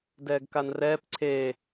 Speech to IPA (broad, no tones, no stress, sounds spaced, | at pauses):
d ɛː ɡ k a n r ɛː p ǀʰ eː